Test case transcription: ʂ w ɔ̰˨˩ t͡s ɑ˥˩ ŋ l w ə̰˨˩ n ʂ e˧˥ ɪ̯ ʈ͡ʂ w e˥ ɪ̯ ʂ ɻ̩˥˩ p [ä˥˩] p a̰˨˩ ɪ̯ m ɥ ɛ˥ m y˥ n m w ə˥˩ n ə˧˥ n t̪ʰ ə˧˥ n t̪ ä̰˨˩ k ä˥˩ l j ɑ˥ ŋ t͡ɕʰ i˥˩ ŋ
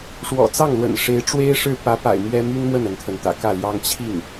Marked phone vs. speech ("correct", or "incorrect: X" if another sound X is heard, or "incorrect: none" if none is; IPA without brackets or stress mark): incorrect: ä˧˥